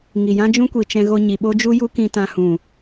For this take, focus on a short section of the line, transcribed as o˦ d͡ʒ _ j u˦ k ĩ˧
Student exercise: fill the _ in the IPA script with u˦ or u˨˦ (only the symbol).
u˦